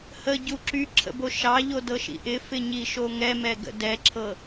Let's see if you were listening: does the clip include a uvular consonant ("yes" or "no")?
no